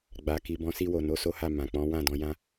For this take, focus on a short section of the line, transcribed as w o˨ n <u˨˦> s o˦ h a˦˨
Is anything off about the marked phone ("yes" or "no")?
yes